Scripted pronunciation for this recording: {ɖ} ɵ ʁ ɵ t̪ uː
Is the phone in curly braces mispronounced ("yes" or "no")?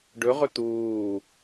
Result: no